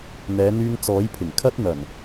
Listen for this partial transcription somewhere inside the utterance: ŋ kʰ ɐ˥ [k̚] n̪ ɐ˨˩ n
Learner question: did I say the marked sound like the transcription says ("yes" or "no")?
no